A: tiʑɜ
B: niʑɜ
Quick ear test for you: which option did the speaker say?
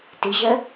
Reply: A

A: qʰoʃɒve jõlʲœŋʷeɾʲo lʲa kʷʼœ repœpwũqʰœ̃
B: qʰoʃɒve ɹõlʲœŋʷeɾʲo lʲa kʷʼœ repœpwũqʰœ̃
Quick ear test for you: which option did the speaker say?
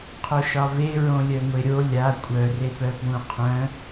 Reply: B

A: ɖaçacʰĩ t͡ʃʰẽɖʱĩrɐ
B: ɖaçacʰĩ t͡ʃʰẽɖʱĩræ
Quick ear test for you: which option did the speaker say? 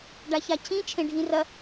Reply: A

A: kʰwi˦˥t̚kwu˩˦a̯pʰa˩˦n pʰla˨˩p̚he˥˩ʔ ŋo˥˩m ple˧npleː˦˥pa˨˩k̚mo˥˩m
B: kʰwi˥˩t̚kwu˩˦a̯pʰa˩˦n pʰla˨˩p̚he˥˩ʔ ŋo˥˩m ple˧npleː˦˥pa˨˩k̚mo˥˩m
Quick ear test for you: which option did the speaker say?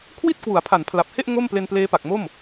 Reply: B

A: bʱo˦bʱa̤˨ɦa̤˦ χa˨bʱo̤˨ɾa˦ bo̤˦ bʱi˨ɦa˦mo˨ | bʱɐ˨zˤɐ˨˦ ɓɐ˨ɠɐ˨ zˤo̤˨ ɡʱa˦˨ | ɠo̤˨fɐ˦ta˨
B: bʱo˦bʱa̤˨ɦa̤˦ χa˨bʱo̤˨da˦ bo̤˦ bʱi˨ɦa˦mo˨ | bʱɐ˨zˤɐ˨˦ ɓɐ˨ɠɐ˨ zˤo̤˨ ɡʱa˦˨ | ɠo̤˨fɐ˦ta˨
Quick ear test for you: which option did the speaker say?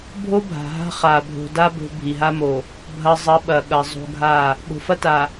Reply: B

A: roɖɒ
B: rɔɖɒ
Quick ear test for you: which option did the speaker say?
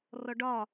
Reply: B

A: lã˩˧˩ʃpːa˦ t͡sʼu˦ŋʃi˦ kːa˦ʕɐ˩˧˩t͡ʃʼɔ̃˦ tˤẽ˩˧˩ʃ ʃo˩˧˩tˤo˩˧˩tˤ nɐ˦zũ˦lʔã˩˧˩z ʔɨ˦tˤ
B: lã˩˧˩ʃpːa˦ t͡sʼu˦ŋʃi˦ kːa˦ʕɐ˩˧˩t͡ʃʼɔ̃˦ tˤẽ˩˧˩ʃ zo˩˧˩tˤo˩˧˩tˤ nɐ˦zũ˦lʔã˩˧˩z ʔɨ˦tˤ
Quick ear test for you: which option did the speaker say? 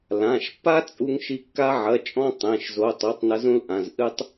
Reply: B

